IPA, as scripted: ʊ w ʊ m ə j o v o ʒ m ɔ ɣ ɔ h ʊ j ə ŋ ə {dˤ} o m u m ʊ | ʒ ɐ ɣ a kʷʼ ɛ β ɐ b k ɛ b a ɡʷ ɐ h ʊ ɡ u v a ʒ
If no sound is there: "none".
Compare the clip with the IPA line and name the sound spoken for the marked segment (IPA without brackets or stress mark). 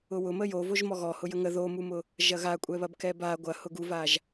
ð